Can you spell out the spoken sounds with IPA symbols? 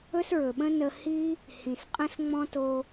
ɵ˦ s ɹ ɵ˨ ɓ ə̃˦ n ə˧ h i˦ | h ĩ˨ s qʼ ə̃˦ s ŋ͡m ɔ̃˦ t o˧

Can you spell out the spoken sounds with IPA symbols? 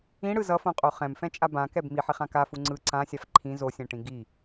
ĩ ɽ ɯ z ʌ f õ qʼ o χ ɛ̃ m f ɛ̃ t͡ʃʼ a b ã k ɛ b m i ħ e χ ã k a f u ŋ͡ǀ ɯ ǀ ã sʲ a f ǃʰ ĩ z o sʲ ɛ̃ ʈ ĩ ɡ i

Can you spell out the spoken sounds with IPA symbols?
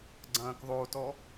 ɡ͡ǀ ɐ̃ː k ðˤ o t ɔ

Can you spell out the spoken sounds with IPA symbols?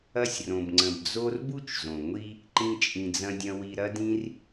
ɐ˦ sʲ r õ˩ b ŋ͡ǀ ə̃˩ b d͡z o˦ r b u˥ t͡ʃ z õ˩ ŋʷ i˥ | ǃ ĩ˨ t͡ʃʼ ĩ˩ d͡z ɐ̃˨ dʲ ɐ̃˨ w i˨ ɾ ɐ˦ d ĩ˦ r

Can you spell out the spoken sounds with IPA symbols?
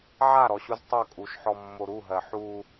ʕ a ɾ ɔ ɕ u z tˤ ʌ kʼ u ʃ ħ ɔ mː o ɾ u ɦ ɜ ħ u

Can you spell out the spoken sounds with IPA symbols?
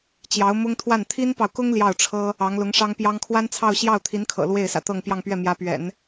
t͡ɕ j ɑ˧˥ ʊ̯ m ʊ˥ ŋ t̪ʰ w a˥˩ n t̪ʰ i˥ n p ɑ˨ ʊ̯ k ʊ˥ ŋ l j ɑ˥˩ ʊ̯ ʈ͡ʂʰ ɤ˥ | ɑ˧˥ ŋ l ʊ˧˥ ŋ ʂ ɑ˥ ŋ p j ɑ˥ ŋ kʰ w a˥ n t͡sʰ ɑ˥˧ ʊ̯ ɕ j ɑ˥˩ ʊ̯ t̪ʰ i˧˥ n kʰ ɤ̰˨˩ l w e˥˩ ɪ̯ s ä̰˨˩ t̪ ɤ˥˧ ŋ p j ɑ˥˧ ŋ p ɥ ɛ˥˩ m j ä˧˥ p ɥ ɛ̰˨˩˦ n

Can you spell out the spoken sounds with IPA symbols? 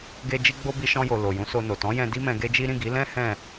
ɡ e˧ d͡ʒ i˦ ɡ͡b o˦ b i˧ ʃ ɔ̃˧ j o˨ l o˨ j ũ˨˦ s o˧ n o˨ t ɔ̃˨˦ j ɛ̃˧ d i˦ m ɛ̃˧ ɡ e˦ d͡ʒ i˦ ɾ ĩ˦˨ ɡ i˨˦ l ɛ̃˦ h ɛ̃˦˨

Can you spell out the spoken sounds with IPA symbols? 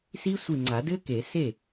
s i˦˥ sʷ i˧˩ ŋ͡ǀ a˨˩˦ d ɘ˦˥ k e˨˩˦ s e˥˩

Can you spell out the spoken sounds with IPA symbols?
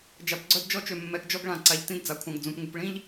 d͡ʒ a˨ p ɡ͡ǀ œ˦ d d͡ʒ ɔ˦ t͡ʃ ø˨ mː ɛ˨˦ ɡ d͡ʒ ɔ˦ ɡ ɭ ã˨ ǀ a˨ ʎ t ĩ˦ d d͡z a˨ kʷʰ ã˨ ɡ d͡z ũ˨ p ŋ u˨ p ɭ ĩ˦ ʎ

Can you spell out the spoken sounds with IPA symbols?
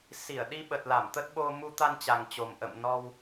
s i˧˩ ə̯ ɗ i˧ ɓ ə˨˩ t̚ l a˧˩ m t̪ ə˦˥ t̚ ɓ o˧ m u˧ t̪ a˧ n t͡ɕ a˨˩ ŋ t͡ɕ o˨˩ m ʔ ə̰˧˨ m n ɔ˧ w

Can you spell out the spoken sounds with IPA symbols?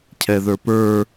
cʰ ɛ ð ə˞ p ə˞

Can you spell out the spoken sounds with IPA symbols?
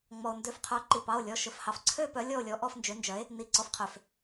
ŋ͡m ɔ˩ o̯ n d ø˩˥ f qʰ œ˩˥ ǃ i˩˧˩ p ɑ˩˧˩ o̯ lʲ ɔ˩˧˩ ʃ ɵ˩˧˩ f h ɑ˩ f ǀʰ ø˥˨ p œ˩˥ lʲ ɔ˥˨ o̯ lʲ ɔ˩˥ ʔ ɔ˥˨ f n d͡ʒ ø˩˥ n d͡ʒ œ˩˥ e̯ | n i˩˧˩ ǀ ɔ˩˥ f qʰ ø˩ f

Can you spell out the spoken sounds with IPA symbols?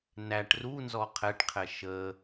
n æ ʈ r u n z ɔ qʰ ɛ ʈ qʰ ɛ ʃ ə

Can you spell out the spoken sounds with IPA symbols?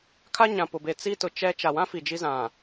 kʰ a˦ ɲ ã˨ p ʊ˨ b e˨ t͡s i˦ t ʊ˨ t͡ʃ ɛ˦ t͡ʃ a˨ w ã˦ f i˨ d͡ʒ i˦ z ã˨

